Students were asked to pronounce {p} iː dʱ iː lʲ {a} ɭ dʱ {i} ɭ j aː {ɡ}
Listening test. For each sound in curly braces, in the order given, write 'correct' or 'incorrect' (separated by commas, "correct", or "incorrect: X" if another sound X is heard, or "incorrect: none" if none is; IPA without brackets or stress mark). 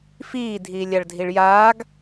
incorrect: f, correct, correct, correct